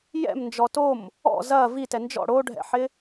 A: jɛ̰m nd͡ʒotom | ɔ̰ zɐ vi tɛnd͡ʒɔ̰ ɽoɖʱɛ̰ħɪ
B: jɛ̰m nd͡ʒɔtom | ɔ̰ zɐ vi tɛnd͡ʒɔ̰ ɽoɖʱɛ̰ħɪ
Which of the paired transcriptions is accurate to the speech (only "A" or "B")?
B